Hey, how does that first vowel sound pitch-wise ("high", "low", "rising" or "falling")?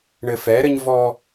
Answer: low